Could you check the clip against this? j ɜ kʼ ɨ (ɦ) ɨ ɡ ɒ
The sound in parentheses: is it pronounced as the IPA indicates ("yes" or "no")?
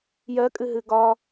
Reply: yes